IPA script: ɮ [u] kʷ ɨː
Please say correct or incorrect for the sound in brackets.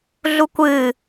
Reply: correct